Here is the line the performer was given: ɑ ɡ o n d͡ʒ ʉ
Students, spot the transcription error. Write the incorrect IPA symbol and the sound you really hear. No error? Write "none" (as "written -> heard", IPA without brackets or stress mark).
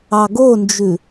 none